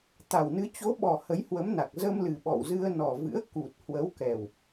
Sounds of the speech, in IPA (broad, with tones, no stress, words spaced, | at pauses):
t̪a˨˩wnɨ˨˦ t͡ɕo˨˦ɓɔ˨˩ hə˨˦jhwə˨˦mna˨˩k̚ zə˧m lɨ˨˩ɓɔ̰˧˨wzɨ˧ə̯ nɔ˨˩vɨ̰˧˥ə̯ku˨˩t̚ hwə˨˦wkɛ˨˩w